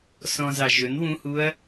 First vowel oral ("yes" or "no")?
no